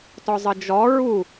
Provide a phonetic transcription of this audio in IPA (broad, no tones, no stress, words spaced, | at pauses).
tɔzˤɨd͡ʒɔ ɹu